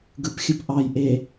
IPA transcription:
ɡ ɯ p xʲ ɯ p ʔ ɑ j ʔ e

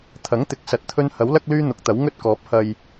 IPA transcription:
t̪ʰ ɐ˨˥ ŋ t̪ ɪ˨˥ k̚ s ɐ˨ t̚ t̪ʰ ɵ˥ n h ɐ˨˥ w l ɐ˥ k̚ l yː˥ n̪ ʊ˨˥ k̚ t̪ ɐ˨˥ w ŋ ɵ˥ t̚ k ɔː˨˥ p̚ h ɐ˧ j

